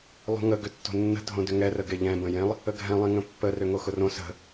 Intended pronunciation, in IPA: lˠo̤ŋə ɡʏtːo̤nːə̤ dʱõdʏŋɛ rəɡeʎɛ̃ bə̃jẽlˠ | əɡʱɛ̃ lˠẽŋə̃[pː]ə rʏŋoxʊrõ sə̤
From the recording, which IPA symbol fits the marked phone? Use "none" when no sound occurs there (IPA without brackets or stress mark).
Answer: pː